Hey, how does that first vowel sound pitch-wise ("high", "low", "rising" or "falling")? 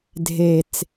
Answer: low